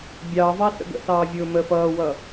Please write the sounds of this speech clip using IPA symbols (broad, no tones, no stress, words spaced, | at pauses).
bʲɑvɑ sə̰ɡə̰sɑː vʲʊːməːfʌːwʌ